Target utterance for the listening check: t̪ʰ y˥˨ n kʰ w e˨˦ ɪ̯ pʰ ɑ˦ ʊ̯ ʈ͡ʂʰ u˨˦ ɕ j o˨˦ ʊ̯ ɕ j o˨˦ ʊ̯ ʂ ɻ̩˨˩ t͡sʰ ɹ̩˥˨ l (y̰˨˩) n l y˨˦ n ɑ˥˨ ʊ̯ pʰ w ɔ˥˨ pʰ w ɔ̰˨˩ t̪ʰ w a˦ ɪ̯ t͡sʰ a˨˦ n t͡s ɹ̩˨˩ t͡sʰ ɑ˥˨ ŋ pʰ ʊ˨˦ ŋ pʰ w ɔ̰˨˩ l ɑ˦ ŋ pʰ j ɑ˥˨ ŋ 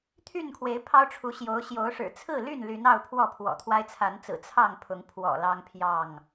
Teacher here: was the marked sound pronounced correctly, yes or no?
no